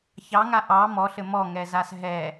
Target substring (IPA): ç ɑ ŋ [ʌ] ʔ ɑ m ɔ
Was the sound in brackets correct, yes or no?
no